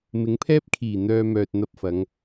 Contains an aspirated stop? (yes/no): yes